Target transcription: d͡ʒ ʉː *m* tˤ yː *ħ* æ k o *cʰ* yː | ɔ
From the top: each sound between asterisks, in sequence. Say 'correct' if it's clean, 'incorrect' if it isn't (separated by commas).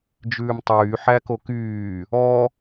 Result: correct, correct, incorrect